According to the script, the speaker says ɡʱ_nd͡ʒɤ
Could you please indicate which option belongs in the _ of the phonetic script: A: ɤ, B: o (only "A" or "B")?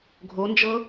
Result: B